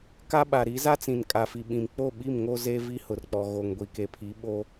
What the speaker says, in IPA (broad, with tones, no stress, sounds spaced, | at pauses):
k a˦ ɓ a˨ ɾ i˨˦ z a˦ t͡s ĩ˨ n kʼ a˨ f i˨ ɓ ĩ˨ m k͡p o˦˨ ɓ i˦˨ m ŋ o˦ z e˦ v i˦ h ʊ˨ r k͡p ɔ˨ ɣ o˨ ŋ ɡʷ i˨ k e˨ pʰ i˨˦ ɓ o˦